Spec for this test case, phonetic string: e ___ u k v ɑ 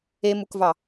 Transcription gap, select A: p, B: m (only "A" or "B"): B